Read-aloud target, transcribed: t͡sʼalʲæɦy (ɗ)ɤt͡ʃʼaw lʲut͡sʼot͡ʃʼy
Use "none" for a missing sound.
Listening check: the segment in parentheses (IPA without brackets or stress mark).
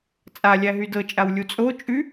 d